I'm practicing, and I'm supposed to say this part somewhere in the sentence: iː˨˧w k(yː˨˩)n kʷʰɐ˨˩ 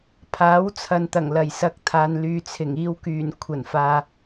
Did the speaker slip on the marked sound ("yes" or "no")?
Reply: no